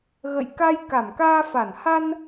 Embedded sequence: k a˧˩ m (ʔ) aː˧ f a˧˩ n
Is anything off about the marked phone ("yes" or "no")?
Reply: yes